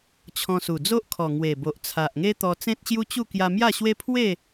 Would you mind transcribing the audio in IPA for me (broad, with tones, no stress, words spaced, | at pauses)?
t͡ɕʰɔ̃˧su˨˩d͡zo˦ʔkʰɔ˨˩ ŋwe˨˩bo˨ʔ t͡sʰa˨ʔŋe˦ t̪ɔ˧t͡sẽ˦t̚ɕju˦t͡ɕu˥˧ kja˧mja˥˧ɕwe˦ pʰwe˥˧